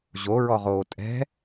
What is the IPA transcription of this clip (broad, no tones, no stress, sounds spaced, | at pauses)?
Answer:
ʑ o ɹ ɔ ʁ oː tʼ ɛ̤